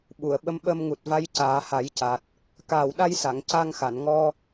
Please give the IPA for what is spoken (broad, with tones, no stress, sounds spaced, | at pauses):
ɓ u˨˩˨ ə̯ ɓ ə˧˥ m ɓ ə˧ m ŋ u˨˩ t̚ v a˧˥ j c aː˨˩˦ h a˨˩˦ j c a˨˩ t̚ | k aː˨˩ w ɗ a˧ j s a˨˩˨ ŋ c a˧ ŋ x a˨˩˨ n ŋ ɔ˧